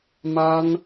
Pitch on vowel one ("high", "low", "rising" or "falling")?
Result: high